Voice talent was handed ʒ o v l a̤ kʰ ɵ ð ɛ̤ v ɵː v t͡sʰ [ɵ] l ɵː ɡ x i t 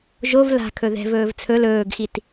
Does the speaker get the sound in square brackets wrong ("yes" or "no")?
no